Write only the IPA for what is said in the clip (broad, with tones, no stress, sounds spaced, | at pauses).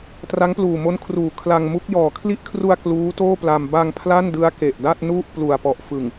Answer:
t r a˦˥ ŋ p l uː˨˩ m o˦˥ n kʰ r uː˨˩ kʰ l a˧ ŋ m u˦˥ k̚ j ɔː˨˩ kʰ l i˦˥ ʔ kʰ r u˧ a̯ k l uː˦˥ t oː˥˩ p l a˧ m b a˧ ŋ pʰ l a˥˩ n d ɯ˦˥ a̯ k e˨˩ ʔ d a˥˩ t̚ n u˥˩ ʔ p l u˨˩ a̯ p ɔ˨˩ ʔ f ɯ˨˩ ŋ